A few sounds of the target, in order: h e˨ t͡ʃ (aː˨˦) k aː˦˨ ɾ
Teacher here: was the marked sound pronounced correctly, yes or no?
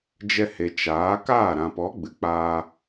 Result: yes